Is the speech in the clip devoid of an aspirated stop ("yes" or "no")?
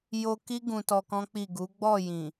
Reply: yes